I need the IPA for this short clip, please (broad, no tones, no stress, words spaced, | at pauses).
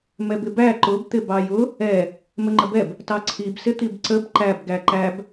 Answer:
mɛbɪbæ ǃʊbt̪ɪ bɑjʊ | ɛ | məŋ͡ǃəbɛb | tɑǀʰibsɪt̪ib ǀəb ǃæbɡæ ǃæb